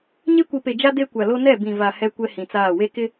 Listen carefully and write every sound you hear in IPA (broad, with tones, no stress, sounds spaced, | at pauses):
ɲ e˦ kʷ i˨ p e˨ d͡ʒ a˦ d e˦ kʷ a˨ l o˦ n ɛ˦˨ b ĩ˨ v a˨ h ɛ˦ kʷ ɛ˦ h ĩ˨ t͡s aː˦˨ w e˦ k ɪ˦